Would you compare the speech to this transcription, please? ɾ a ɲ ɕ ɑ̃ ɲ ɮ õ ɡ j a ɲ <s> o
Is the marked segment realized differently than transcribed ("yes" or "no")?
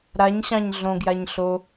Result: yes